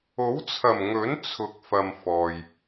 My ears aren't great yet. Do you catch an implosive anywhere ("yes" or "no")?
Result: no